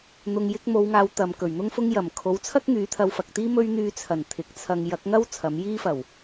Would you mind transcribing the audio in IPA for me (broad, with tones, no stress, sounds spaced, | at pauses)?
n̪ ʊ˨ ŋ j ɪ˧ k̚ m o˨˧ w ŋ aː˨˧ w t̪ ɐ˨ m k ɵ˨˩ ɥ n̪ ʊ˥ ŋ f ʊ˥ ŋ j ɐ˨˩ m kʰ o˨˥ w t͡sʰ ɐ˥ k̚ ŋ yː˨˧ t̪ʰ ɐ˧ w f ɐ˨ k̚ t̪ iː˥ m ɵ˥ ɥ n̪ yː˧ t͡sʰ ɐ˨˩ n t̪ʰ ɪ˨˥ k̚ t͡sʰ ɐ˧ ŋ j ɐ˨˥ k̚ ŋ ɐ˥ w t͡sʰ ɐ˨˥ m j iː˥ f ɐ˨˩ w